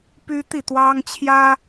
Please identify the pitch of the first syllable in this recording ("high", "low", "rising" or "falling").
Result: high